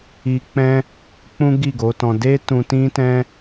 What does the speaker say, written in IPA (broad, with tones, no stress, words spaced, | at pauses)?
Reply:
i˧k͡pɛ̃˦ | k͡pũ˦ɡi˦˨ɡo˨˦tɔ̃˧ de˦tũ˧ tĩ˦tɛ̃˦